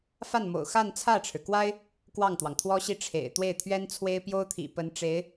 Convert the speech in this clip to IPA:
f a˥˩ n m o̰˨˩ ʊ̯ x a˥˧ n t͡sʰ ä˥˩ ʈ͡ʂʰ ɻ̩˩ k w a˥ ɪ̯ | k w ɑ˥˩ ŋ t̪ w ɑ˩ ŋ t̪ʰ w ɔ˥ ɕ i˥˩ ʈ͡ʂʰ ḛ˨˩ ɪ̯ t̪ w e˥˩ ɪ̯ t̪ʰ ɥ ɛ˥ n t͡sʰ w e˥ ɪ̯ p j o˥ ʊ̯ t̪ʰ ḭ˨˩ p ə˧˥ n ʈ͡ʂ e˧˥ ɪ̯

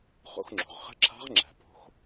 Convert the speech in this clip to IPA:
χ o̰˧ x ŋ͡ǁ o̤˩ ʁ χ ə̤˧˥ ǁʰ a̤˧˥ ʁ ŋ͡ǁ æ̤˩ p o̤˩˧ x

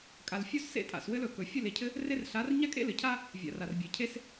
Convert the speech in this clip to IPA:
kʼ a˨ l fʲ o˦ z s ḛ˦ tʼ a̰˨ s w ɘ˦ l ɵ˨ k ɵ˨ fʲ ɵ˦˨ l e˨ cʰ ɘ˦ | r e˦ r ɬ a˨˦ r ɲ a˦ kʼ ḛ˦ l ɘ˨ cʰ a˦ | vʲ a̰˨ r a˨ r bʲ e˨ cʰ e˦ s

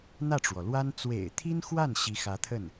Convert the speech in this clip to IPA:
n̪ ä˥˩ ʈ͡ʂ w ɔ˩ l w a˥ n t͡s w ḛ˨˩ ɪ̯ t̪ʰ i˥ n x w a˥˩ n ɕ i˧˥ x ä˧˥ t̪ʰ ə˥˩ n

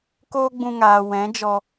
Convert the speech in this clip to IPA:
k oː˦ ɡ͡b ũ˧ ŋ aː˨ w ɛ̃˨˦ d͡ʒ ɔ˧

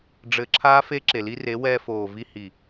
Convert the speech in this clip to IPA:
ɖ͡ʐ ɘː˧ ǁʰ aː˦ f e˦ ǁ e˨ l i˧ r e˨˦ w ɛː˧ f oː˨ v i˧ h i˨

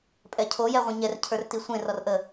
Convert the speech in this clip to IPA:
pʼ ɛ cʰ o j ɛ ʁʷ ẽ ɲ ɛ r cʰ ə˞ r t i sʷ ẽ r ɔ r ʔ ə

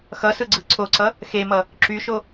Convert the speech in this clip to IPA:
x ʌ s ɯ ɡ͡ǀ ɯ ǀʰ o ǀ ʌ | x e m ʌ | ǁ y ʃ o

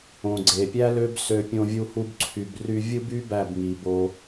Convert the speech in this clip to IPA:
õ˨ ɡ͡ǀ e˨ pʲ æ˦ l ø˦ b s ø˧ pʲ õ˧ vʲ u˧ h u˧ b ǀʰ y˨ b r y˧ vʲ ɯ˦ b y˦ b æ˦˨ b ŋ i˨ b o˧

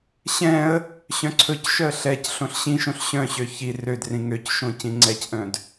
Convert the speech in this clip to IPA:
ɕ ɛ̃ ə̯ | ɕ œ̃ ǀʰ ɵ c ʃ œ ə̯ ɬ ɛ c ɬ õ ɬ ɕ ĩ ʃ õ ɬ ɕ œ̃ ɕ ø ç i r ø d r ĩ ŋ ø c ʃ õ c ĩ ŋ͡ǀ ɛ c ʔ œ̃ d

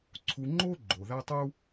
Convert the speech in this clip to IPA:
ǀʰ u˦ ŋ͡ǃ o˥ ɡ͡ǃ o˨ ð æ˥ tˤ u˥

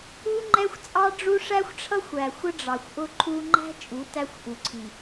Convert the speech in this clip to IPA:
u˦ ŋ͡ǃ ɛ˦ xʷ t͡sʼ ɑ˦ ɖ͡ʐ u˦ ʂ æ˦ xʷ ʈ͡ʂʰ ʌ˦ xʷ æ˨ xʷ ə˦ ɖ͡ʐ ɑ˨ xʷ ʔ ʊ˦ ǃʰ u˦ ŋ͡ǃ æ̤˦ t͡ʃʼ u˨˦ t æ˦ xʷ ʔ u˨ ǀʰ i˨

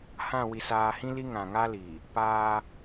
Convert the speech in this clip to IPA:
h ã˦˨ w i˨ s aː˨ h ĩ˦ l i˦ ŋ ã˨ ŋ a˦ l i˨ | p aː˦

